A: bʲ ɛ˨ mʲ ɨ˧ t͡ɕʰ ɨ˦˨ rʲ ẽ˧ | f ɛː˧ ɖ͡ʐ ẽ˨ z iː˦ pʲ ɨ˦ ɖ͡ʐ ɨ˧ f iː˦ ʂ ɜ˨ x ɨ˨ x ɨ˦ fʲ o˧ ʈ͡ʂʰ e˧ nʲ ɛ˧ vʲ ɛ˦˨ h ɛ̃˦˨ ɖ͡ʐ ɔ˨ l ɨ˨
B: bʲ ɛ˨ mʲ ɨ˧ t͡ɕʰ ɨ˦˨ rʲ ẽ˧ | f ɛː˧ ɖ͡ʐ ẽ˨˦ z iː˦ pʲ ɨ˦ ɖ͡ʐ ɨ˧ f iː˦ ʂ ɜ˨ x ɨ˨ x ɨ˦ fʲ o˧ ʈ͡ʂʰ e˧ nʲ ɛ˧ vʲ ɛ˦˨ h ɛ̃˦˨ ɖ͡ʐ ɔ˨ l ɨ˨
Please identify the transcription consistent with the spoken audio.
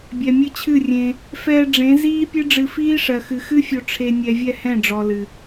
B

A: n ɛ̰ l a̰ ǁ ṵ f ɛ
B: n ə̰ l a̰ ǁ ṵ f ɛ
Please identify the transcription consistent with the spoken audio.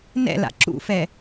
A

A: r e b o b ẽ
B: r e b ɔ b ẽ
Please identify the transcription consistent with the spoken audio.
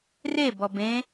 B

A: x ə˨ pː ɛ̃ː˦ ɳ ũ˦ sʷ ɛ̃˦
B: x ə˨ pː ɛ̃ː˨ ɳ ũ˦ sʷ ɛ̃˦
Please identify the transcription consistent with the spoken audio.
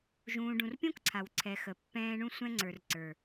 A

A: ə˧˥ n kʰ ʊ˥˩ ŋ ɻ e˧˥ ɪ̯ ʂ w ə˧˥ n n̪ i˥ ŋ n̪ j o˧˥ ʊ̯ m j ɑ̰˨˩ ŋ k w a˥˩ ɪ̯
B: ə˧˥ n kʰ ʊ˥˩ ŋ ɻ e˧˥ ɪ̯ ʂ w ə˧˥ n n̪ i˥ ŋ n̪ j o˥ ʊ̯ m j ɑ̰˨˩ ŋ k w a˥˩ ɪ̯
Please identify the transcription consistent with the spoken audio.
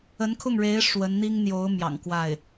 A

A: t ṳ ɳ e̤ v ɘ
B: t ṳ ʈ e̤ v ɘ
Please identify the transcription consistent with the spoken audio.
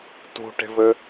B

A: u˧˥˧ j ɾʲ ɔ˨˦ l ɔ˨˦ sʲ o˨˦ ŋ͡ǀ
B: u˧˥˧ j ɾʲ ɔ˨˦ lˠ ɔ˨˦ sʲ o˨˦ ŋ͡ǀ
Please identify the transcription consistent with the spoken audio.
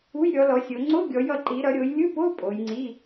A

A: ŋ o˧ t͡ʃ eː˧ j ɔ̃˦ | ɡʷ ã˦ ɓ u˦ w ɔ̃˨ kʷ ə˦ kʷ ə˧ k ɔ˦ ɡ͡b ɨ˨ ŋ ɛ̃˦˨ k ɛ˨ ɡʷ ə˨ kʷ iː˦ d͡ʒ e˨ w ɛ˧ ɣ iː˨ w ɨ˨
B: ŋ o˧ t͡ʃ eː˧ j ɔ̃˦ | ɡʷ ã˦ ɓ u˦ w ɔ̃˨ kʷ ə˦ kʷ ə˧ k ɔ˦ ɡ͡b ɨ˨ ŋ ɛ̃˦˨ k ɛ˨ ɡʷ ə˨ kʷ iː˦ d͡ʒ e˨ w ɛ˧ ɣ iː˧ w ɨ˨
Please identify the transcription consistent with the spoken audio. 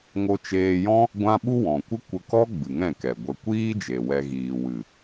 A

